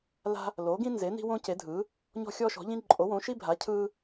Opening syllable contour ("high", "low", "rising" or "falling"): high